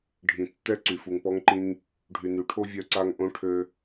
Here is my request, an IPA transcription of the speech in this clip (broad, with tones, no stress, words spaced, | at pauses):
ɖʱĩ˨tːɛ˦ ǀy˨fu˨ŋpɔ˦ŋǃĩ˦ŋ | ɖʱy˨ny˨˦ʈʰo˦ vʲœ˦ǀa˦ŋ ʔõ˦ʈʰø˦